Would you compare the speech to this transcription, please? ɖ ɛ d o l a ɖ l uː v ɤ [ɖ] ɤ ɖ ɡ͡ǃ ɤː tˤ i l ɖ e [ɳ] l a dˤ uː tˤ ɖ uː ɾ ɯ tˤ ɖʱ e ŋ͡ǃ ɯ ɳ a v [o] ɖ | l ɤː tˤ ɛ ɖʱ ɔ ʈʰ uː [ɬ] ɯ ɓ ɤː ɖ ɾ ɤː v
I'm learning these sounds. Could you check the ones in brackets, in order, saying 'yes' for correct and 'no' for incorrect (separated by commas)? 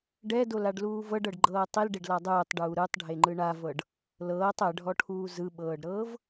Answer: yes, no, no, no